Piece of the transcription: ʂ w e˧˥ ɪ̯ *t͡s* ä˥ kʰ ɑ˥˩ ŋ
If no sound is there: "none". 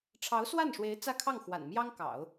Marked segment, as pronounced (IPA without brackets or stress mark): t͡s